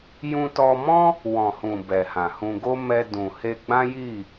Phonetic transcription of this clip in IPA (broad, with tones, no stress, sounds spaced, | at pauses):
j ũ˧ t ɔ˧ m ɔ̃˦ | w ɔ̃˨ h ũ˨ b ɛ˨ h ã˨ h ũ˧ ɡ o˦ m ɛ˧ d ũ˨ h e˧ ɡ͡b ã˦ j i˦˨